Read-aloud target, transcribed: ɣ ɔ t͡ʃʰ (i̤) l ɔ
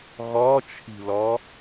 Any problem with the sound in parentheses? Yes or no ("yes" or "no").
no